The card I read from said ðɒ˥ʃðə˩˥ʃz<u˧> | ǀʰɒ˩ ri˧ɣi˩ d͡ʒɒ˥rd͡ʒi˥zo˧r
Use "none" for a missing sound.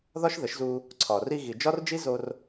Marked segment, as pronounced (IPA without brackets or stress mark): u˧